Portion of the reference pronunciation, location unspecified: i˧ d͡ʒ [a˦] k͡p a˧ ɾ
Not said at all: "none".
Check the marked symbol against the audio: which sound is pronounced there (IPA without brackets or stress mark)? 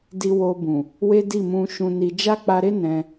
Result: a˦